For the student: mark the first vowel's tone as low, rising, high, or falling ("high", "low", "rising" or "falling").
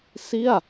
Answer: falling